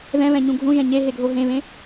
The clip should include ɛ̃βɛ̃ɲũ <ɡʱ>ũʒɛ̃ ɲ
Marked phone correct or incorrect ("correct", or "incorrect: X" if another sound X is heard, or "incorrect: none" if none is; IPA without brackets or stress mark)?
correct